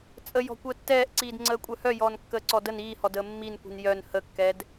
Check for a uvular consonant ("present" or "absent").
absent